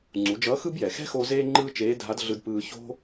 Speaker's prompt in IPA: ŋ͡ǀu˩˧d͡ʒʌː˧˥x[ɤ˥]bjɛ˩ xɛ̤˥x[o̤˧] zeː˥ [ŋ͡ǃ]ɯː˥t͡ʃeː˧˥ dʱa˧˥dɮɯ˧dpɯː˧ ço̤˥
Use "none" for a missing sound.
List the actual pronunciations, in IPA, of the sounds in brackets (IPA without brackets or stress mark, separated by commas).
ɯ˥, o˧, ŋ͡ǃ